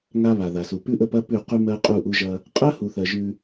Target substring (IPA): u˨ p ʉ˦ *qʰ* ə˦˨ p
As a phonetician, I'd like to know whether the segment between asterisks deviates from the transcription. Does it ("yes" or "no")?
yes